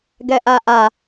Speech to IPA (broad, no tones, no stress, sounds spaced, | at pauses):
ɡ ɛ ʔ a ʔ a